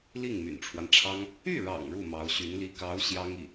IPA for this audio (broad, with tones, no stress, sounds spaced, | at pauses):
l i˥˩ ŋ m y̰˨˩ n ʈ͡ʂʰ w a˦ n ʈ͡ʂʰ ɑ˥ ŋ | y˥˩ ɻ ɑ̰˨˩ ŋ ɻ u˥˩ m ɑ˧˥ ʊ̯ ɕ y˧˥ n l i˥ k ɑ˧˥ ʊ̯ ɕ j ɑ˥ ŋ i˥˩